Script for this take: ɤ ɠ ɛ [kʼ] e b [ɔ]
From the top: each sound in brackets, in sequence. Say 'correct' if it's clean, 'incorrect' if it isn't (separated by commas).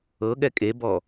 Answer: correct, correct